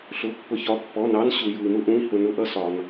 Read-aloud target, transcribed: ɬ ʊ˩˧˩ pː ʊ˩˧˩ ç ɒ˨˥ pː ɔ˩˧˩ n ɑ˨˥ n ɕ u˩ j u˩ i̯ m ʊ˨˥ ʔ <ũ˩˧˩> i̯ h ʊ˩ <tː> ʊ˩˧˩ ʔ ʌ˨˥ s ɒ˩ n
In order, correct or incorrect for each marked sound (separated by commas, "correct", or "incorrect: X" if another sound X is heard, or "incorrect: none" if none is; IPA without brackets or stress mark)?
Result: correct, incorrect: n